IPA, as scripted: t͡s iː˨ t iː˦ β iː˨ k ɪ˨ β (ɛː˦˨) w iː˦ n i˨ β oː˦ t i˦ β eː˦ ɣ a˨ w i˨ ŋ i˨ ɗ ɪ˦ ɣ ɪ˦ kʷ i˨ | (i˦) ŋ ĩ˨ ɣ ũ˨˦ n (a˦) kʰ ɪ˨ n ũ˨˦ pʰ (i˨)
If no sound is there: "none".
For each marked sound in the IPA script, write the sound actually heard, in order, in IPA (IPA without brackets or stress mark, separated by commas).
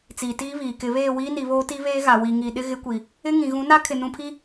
eː˦˨, ɪ˦, a˦, i˦